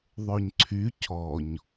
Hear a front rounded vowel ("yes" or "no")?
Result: yes